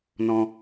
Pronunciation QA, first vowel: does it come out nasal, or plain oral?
nasal